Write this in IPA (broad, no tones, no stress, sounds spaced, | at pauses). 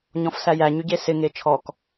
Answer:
ɲ ɔ̃ f s æ j æ ɲ y ɟ e s ɪ ŋ e t͡ʃʰ ɔ k